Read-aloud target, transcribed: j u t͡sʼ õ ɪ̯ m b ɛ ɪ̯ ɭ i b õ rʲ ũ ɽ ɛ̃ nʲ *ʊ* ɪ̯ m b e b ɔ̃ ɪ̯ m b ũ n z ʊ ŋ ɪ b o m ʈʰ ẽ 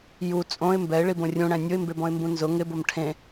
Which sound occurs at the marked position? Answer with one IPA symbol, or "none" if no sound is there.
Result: ʊ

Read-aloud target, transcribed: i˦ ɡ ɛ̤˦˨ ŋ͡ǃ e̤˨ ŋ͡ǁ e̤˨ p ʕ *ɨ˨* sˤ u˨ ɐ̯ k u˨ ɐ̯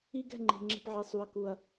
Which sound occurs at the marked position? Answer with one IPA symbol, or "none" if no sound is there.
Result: e˨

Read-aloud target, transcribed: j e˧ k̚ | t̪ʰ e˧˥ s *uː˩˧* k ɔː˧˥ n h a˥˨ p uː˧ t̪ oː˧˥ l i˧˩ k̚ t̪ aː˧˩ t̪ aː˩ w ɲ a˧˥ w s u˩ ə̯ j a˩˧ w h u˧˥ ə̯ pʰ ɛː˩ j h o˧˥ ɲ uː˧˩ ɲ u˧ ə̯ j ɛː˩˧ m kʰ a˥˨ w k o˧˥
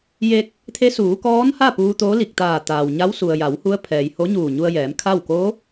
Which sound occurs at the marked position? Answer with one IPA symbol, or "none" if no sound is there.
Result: uː˩˧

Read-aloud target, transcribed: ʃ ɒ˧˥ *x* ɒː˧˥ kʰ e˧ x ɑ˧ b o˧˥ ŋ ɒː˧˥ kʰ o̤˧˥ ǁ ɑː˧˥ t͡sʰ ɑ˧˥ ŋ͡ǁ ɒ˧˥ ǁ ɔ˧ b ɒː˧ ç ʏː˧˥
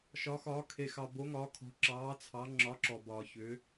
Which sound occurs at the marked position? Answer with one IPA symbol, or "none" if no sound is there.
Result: x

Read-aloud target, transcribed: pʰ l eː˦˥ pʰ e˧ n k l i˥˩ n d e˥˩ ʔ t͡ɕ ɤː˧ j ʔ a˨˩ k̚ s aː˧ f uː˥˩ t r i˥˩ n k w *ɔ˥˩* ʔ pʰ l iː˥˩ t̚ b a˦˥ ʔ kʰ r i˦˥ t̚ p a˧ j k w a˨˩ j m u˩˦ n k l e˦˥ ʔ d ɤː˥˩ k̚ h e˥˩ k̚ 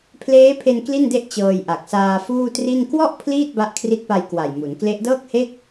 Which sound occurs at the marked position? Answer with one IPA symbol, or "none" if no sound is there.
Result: ɔ˥˩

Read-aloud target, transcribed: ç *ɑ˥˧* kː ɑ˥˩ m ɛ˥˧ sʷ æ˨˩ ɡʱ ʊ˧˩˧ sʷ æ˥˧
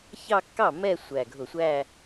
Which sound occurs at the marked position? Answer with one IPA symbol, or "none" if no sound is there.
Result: ɑ˥˧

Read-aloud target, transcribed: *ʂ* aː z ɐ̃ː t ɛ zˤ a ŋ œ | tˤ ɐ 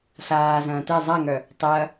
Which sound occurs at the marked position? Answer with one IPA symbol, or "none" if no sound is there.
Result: ɬ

